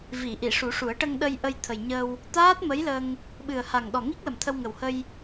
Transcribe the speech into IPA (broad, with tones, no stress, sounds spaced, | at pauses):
v i˨˩˨ ʔ i˨˩˨ ʂ u˨˩˦ ʂ u˨˩˦ ə̯ ʈ ə˧ ŋ ɗ ə˧ j ʔ ə˧ j t̪ʰ ə˨˩ j ɲ ə˧ w | t̪ aː˦˥ t̚ m ə˧˥ j l ə˧ ŋ | ɓ ɨ˨˩ ə̯ h a˨˩ ŋ ɗ ɔ˨˩ ŋ i˦˥ k̚ l ə˨˩ m t̪ʰ ə˧ w ŋ ə˨˩ w h ə˧ j